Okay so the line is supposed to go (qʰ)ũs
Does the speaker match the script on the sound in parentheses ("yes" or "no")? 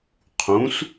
yes